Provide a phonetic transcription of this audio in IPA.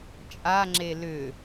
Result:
t͡ʃʼaŋ͡ǁe lʏ

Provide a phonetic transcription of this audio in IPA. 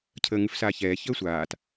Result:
cʰəːŋʉfsaːçɛː çəːsʷaːt

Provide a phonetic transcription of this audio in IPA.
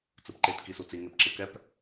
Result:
t͡sɯpǃet kisut͡si ŋepǁɯkɛp

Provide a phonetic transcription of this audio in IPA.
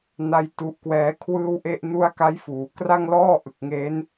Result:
na˥˩jtu˦˥ʔkwɛː˦˥ kʰwɯː˥˩wʔe˥˩ʔnu˥˩a̯ ka˦˥jfuː˩˦kra˥˩ŋlɔː˥˩ ʔɯ˨˩k̚ŋe˦˥n

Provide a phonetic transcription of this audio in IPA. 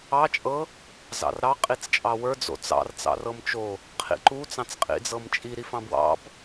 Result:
ɑ t͡ʃʼɤ | zɑ̰rɾɑ qʼit͡st͡ʃʼɑwə˞ d͡zo̰t͡sɑ̰r t͡sɑ̰rɤmt͡ʃo | qʰḭǃu t͡sɑ̃t͡sqʼḭd͡zɤmt͡ʃʼi ɾifɑ̃bwɑ̰b

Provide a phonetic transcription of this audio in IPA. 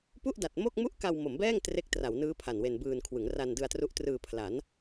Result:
pu˥˩ʔda˨˩t̚ mo˥˩k̚mu˥˩ʔka˧w mo˩˦mbɛː˥˩ŋ tre˦˥k̚ tra˩˦wnɯː˦˥ pʰa˨˩nwe˧nbɯː˧nkʰwɯ˩˦ŋ ra˧ndɯ˧a̯tru˦˥ʔtrɯː˧ pʰla˩˦n

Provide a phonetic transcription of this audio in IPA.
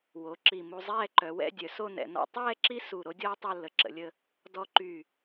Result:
wo˩˧ ǁi˧˩mu˧ zˤɛː˥˧ǃœ˩˧ wɛ̰˥˧dʲœ˩˧ so˥˧nɛ̰˩˧ nɔ̰˧tˤɛː˥˧ ǁi˥su˧˩ ɾo˥dʲɔː˥tˤo˥˧lːə˧˩ ǁə̰˩˧lʲə˧ | dɔ˧ǃy˧˩

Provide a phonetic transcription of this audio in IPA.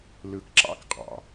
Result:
lɯ˩˧kǁɑ̰˦˥kqʼɑ̰˩

